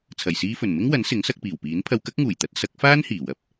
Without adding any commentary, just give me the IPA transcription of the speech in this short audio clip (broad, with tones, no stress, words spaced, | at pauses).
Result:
t͡sʰɐ˨˩jsiː˧fɵ˨˩n mɪ˥ŋwɐ˨˥n sɪ˨˥ŋsɐ˧k̚piː˨˩wpiː˨˥n pʰɐ˧wkɐ˥k̚ŋuː˨˩jt̪ɐ˨˥t̚ sɐ˨˥k̚faː˥nhiː˨˩ wɐ˧p̚